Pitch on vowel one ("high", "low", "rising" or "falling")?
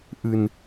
low